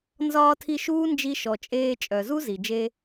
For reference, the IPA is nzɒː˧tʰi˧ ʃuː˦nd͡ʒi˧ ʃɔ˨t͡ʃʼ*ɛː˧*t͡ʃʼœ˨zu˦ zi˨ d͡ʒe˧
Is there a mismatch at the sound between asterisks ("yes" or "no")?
yes